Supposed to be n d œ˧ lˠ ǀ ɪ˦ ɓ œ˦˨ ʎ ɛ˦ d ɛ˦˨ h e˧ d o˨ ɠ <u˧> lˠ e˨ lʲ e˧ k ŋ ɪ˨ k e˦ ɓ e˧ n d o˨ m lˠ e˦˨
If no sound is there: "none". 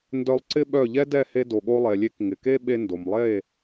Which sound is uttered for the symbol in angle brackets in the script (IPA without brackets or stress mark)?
o˧